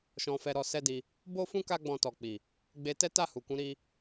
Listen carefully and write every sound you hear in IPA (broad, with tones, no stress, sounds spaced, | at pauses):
ʃ ɔ̃˧ f ɛ˧ ɾ ɔ˧ s ɛ˦ d i˧ | b o˦ f ũ˦ k a˦ ɡ͡b ɔ̃˧ t ɔ˨ k͡p i˨ | ɡ͡b e˧ t ɛ˦ t a˦˨ h u˨ k ũ˨˦ ɾ i˧